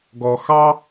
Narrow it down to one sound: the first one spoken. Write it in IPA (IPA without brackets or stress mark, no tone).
ɡ